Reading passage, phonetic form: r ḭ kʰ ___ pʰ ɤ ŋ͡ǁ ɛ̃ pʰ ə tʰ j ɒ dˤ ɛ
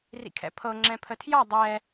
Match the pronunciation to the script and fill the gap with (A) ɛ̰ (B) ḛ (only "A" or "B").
A